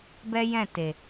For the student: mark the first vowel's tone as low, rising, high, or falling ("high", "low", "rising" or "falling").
high